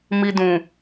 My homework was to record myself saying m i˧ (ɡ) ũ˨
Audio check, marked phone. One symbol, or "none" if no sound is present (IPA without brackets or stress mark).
d